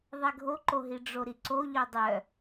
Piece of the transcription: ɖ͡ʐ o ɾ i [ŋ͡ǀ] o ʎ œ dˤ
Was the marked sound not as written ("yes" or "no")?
yes